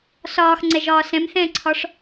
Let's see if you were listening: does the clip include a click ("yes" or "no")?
yes